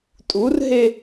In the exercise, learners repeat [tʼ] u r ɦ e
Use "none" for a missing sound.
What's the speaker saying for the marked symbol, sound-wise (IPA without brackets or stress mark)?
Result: tʼ